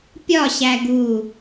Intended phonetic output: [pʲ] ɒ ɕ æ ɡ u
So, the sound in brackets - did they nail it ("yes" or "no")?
yes